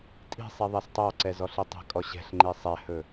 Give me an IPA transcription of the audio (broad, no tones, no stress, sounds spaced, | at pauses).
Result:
tʼ i̤ sˤ i ðˤ ɛ s tˤ ɑ ǀ ɛ z ɔ ɬ i tˤ ɛ̤ kʼ ɔ ɕ ɛ̤ ɬ ŋ͡ǃ i sˤ ɛ h ɵ